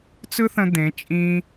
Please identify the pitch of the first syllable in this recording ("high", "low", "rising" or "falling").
high